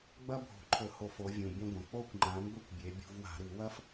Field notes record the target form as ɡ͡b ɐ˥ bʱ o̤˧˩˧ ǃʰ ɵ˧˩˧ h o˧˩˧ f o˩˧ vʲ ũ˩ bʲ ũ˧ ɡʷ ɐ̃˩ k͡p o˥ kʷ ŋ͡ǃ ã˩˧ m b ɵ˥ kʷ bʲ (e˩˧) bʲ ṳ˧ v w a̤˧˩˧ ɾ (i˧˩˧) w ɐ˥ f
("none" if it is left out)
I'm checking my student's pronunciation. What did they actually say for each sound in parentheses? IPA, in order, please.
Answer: e˩˧, i˧˩˧

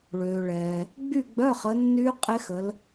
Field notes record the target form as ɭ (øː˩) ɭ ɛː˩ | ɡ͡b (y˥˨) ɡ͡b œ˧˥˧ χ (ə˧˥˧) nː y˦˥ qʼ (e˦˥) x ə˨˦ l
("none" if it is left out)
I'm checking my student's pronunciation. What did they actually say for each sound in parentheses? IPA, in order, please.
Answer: øː˩, y˥˨, ə˨˦, e˦˥

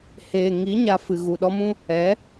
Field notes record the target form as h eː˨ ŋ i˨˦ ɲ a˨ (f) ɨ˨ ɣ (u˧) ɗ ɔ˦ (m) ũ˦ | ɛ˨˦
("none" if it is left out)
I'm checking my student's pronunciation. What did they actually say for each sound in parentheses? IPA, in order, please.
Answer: f, u˨, m

